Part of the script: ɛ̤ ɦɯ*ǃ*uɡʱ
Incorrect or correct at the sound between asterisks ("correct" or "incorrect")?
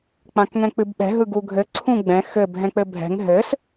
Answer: incorrect